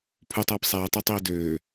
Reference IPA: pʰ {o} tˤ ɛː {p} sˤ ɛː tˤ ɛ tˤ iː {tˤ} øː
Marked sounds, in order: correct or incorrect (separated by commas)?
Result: incorrect, correct, incorrect